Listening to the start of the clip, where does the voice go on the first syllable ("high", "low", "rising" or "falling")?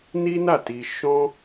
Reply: high